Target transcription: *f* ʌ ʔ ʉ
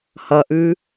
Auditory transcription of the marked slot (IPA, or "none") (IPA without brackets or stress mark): h